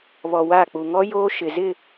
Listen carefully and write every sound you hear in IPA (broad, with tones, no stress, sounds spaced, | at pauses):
β ɔ˨ w a˦˨ k͡p u˨ ŋ ɔ˦ j oː˦ ʃ ɪ˨ z ɪ˦˨